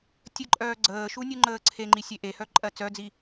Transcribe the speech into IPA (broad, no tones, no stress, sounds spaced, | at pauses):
tʲ ə ǃʼ œː ɡ͡ǀ əː ʃ u nʲ u ŋ͡ǃ əː ǀʰ e ŋ͡ǃ i sʲ e ʔ e h œ ǃʼ ɜ t͡s œ d͡z i